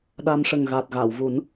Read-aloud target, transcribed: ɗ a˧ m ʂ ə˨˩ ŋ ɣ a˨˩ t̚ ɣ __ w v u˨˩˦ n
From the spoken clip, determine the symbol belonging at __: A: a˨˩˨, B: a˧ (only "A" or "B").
A